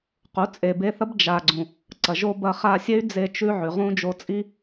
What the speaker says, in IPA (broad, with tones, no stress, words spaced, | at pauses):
qu˨˦t͡sʼe˨be˧θɐ˦b d͡ʒa˨ɡ͡ǀũ˨ | ǀɐ˨ʒo˧ bɐ˧χa˧sʲe˦y̯d͡ze˧ t͡ʃʉ˧ ʕʉ˨ ʁũ˧ d͡ʒo˧t͡sʼi˦